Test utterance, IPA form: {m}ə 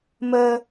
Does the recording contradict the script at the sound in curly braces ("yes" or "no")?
no